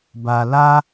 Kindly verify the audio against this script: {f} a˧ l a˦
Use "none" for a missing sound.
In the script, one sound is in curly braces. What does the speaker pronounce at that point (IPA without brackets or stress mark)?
b